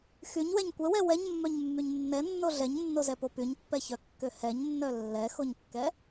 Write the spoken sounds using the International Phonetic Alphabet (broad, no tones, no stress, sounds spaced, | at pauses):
x y ɲ w ɛ ɲ kʷ ɛ w ɛ w ɛ ɲ mː œ ɲ mː y ɲ nː ɛ nː o ɮ ɛ ɲ nː o z ɛ p o p y ɲ pː ɛ ç œ kː ø h ɛ ɲ nː œ lː ɛ x o ɲ kː ɛ